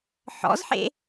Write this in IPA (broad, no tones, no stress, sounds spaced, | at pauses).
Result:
ħ ɔ̰ z ħ ḛ